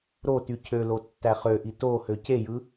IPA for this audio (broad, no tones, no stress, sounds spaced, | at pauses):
ɾ o t y cʰ ø l o tː æ χ ø ʔ i t o h ø c e j ɯ